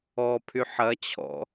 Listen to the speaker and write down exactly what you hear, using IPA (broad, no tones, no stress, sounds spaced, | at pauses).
ɔ pʰ y ħ ɐ t͡ɕʰ ɔ̰